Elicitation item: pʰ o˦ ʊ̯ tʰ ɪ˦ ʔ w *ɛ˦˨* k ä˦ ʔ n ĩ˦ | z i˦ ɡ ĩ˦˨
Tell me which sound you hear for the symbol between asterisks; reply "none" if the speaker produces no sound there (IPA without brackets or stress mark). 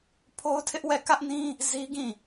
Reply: ɛ˦˨